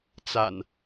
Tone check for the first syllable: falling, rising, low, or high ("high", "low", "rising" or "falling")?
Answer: low